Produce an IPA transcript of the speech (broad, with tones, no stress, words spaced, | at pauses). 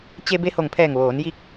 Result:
t͡ɕe˧ be˧ho˧˩ŋpʰɛː˧˩ŋ ʋoː˩˧n ji˧˥k̚